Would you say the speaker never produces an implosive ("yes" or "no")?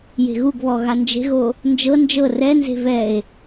yes